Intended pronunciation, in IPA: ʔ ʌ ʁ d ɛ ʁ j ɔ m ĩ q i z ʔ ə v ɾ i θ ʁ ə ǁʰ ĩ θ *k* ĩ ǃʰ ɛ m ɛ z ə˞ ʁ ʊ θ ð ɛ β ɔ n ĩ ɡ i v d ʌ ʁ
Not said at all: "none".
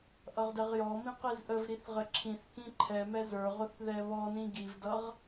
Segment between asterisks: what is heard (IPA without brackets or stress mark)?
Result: k